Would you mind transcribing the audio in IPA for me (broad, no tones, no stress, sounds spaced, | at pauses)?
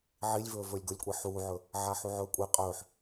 ʕ i lʲ v ɵː v ɵː lʲ ɡ o lʲ kʷʼ e ħ uː ʕ ɵ | ʕ a ħ u ʕ ɵː kʷʼ e qʼ ɵː ħ